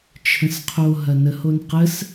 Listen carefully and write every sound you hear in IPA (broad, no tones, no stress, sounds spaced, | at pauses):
t͡ʃʰ ə̃ s qʰ o ɦ ɐ n ə h o n q ə s